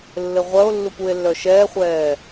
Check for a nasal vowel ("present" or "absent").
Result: absent